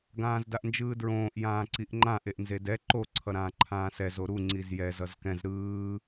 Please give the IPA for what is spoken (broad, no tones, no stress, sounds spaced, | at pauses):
ɡ ãː z d a ʔ n d͡ʒ ɯː d ɹ õː ʔ j ãː ǀ i ʔ ŋ͡ǃ ã ʔ e ʔ n z e d ɛ ǃ o ǀʰ ʌ ɾ ãː ǃʰ ãː s ɛ z o ɾ u ŋ͡ǀ i z j ɛ z ʌ z k ɛ̃ z ɾ ɯː